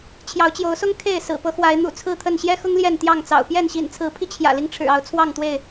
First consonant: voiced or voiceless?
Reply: voiceless